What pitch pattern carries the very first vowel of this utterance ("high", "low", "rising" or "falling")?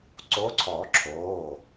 rising